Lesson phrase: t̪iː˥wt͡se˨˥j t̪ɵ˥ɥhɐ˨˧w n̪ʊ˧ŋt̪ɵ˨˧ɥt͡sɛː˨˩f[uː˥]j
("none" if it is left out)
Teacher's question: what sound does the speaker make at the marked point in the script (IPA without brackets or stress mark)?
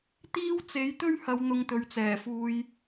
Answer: uː˧